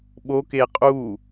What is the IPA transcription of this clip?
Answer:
ɓ o k e qʼ u

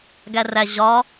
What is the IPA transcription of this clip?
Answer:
ɡ æ r æ ʑ ɒ

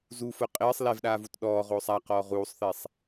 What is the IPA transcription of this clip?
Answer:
z u f ʊ qʼ ɪː sˤ l ɛ v ɗ aː v u t ɗ ɔː ʁ oː sˤ a q ɔː ʁ uː sˤ θ e sˤ

